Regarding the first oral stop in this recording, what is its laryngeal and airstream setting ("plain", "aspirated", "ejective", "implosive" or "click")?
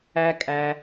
ejective